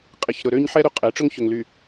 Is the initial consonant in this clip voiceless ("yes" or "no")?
yes